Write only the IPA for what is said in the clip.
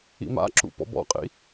ḭ m a̰ ǁ ṵ p ɔ̰ b ɔ̰ qʼ ḭ

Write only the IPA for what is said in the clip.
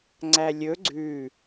ŋ͡ǀ æ lʲ ɵ ɡ͡ǀ ʉ

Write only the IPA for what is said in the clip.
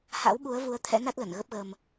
h a̰˧˥ w ɓ u˨˦ ə̯ v u˨˦ ə̯ t̪ʰ ɛ̰˧˥ n a˦˥ t̚ l ə˧˩ n ɣ ə˦˥ p̚ ɣ ə˧ m

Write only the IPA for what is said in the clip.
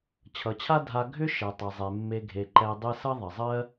t͡ɕʰ ʌ˩ t͡ɕʰ a˦ dʱ a˨ ɡʱ ʏ˥ ʃ ɘ˩ tˤ ɘ˩ zˤ e˩ mː e˨ ɡʱ e˩ ǃ ɛ˨ dˤ ɛ˦ s ʌ˥ ðˤ ɘ˩ zˤ ɜ˥

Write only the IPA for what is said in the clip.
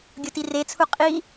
ɡʲ o t i r e t͡sʰ u qʼ i

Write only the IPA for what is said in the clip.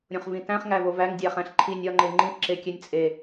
ɾʲ õ χ v ĩ t æ̃ χ ŋ æ v o v æ ŋ dʲ æ χ æ̃ ɬ ǃʰ i nʲ ɒ ŋ͡ǃ e ŋ͡ǃ ĩ ʔ ǁ e kʲ e nʲ t͡sʼ e

